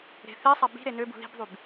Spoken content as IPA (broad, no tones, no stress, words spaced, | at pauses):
ɾe̤θesˤa bi̤ ɾenøbṳ ði̤bðˤyb